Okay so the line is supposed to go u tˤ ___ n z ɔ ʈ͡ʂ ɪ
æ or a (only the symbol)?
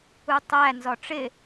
æ